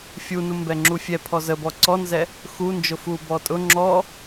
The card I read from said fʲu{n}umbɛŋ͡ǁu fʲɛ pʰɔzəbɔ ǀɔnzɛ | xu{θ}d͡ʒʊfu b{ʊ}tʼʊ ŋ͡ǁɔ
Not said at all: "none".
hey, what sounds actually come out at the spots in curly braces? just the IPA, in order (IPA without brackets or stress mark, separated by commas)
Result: n, n, ɔ